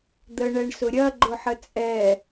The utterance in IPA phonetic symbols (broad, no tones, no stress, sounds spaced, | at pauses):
d̪ ə ɳ ɛ ɳ s ʊ ɾʲ ɐ ɡ͡ǃ ʊ ħ ə t͡sʼ ɛ